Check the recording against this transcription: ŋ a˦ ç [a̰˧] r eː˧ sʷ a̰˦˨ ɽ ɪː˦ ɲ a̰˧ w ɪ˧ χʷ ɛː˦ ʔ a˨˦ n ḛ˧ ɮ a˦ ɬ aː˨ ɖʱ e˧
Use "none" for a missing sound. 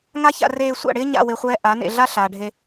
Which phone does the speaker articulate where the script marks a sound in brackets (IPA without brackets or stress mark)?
a̰˧